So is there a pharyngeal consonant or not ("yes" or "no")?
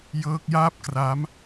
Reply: no